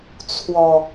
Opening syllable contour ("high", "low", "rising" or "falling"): low